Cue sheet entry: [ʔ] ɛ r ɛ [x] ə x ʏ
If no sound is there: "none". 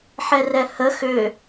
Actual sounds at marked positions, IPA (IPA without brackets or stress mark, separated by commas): ħ, h